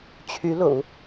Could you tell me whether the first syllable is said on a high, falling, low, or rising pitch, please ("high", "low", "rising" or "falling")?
rising